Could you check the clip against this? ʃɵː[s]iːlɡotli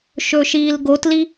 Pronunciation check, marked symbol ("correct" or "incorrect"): incorrect